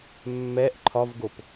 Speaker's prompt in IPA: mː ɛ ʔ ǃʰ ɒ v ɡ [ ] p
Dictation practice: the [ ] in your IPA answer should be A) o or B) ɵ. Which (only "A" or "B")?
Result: A